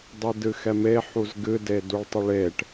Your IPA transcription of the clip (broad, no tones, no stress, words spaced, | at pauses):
dˤidɨxɛme ħuzɡɨde duɭtˤɨɭeʈ